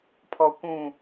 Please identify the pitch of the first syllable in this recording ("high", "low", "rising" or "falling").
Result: low